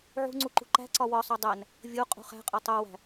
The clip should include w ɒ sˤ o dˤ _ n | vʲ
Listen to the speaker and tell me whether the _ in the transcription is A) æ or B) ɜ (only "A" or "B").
A